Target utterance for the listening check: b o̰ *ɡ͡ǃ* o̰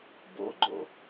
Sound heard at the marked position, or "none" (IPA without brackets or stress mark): ɡ͡ǃ